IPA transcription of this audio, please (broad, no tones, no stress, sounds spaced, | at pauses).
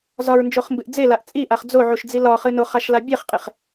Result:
z ɒ ɹ n d͡ʒ o χ m b ɨ ʔ d͡z e l a ʔ t͡sʼ i ʔ a χ d͡z o ʕ u ʃ d͡z i l ɒ χ ɨ n o χ a ʃ l a bʲ e χ qʼ e χ